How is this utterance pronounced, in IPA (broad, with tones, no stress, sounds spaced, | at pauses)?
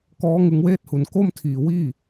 k ɔː˦˥ ŋ ɯ˧ ŋ w eː˦˥ t̚ h u˩˦ n k o˥˩ m tʰ iː˨˩ w iː˥˩